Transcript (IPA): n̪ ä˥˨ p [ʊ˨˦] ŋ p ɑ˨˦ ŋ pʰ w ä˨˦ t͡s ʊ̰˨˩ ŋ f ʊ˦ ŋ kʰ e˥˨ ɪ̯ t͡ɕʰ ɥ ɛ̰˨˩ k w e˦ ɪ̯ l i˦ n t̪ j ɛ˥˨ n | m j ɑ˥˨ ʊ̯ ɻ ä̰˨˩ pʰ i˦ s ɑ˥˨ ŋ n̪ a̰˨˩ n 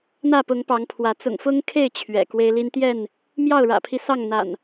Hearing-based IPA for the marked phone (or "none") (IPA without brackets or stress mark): ʊ˨˦